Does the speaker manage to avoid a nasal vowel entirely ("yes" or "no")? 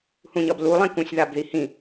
no